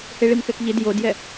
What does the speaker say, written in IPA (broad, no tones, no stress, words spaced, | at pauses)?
heɭimkɛkʎid jodjɛ